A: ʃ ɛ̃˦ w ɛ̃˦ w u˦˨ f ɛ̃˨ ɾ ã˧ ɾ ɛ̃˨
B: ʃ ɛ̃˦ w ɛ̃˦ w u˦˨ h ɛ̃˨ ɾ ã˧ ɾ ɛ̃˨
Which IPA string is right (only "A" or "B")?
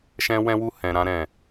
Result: B